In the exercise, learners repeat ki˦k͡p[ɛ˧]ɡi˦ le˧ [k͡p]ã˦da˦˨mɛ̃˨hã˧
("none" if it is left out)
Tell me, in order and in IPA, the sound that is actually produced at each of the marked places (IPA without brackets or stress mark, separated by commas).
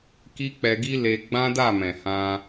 ɛ˧, ɡ͡b